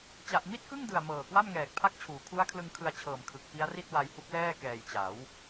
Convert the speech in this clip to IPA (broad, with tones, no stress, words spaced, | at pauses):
t͡ɕa˨˩ʔmi˥˩t̚kɯ˥˩ŋdɯ˨˩a̯ mɤː˨˩kwa˥˩mŋɛː˨˩k̚ pʰa˥˩k̚t͡ɕʰuː˩˦ kʰu˦˥a̯kʰlɯ˧ŋkʰɯ˧a̯t͡ɕʰɤː˨˩m kʰɯ˨˩k̚ pi˦˥a̯ri˥˩t̚wa˧jhu˦˥k̚ lɛː˥˩kɛː˨˩jt͡ɕa˩˦w